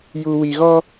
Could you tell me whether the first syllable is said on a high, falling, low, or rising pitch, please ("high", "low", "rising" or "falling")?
low